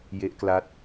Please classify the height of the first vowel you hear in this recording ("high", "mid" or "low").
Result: mid